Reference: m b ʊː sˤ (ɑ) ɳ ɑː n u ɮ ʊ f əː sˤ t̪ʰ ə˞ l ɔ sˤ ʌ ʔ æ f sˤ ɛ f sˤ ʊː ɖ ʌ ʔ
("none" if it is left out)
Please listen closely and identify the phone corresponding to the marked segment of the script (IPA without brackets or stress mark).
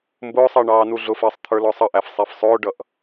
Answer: ɑ